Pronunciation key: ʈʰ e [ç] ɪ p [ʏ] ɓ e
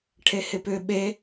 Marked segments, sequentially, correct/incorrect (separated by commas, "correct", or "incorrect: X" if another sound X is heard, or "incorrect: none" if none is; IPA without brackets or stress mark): incorrect: h, correct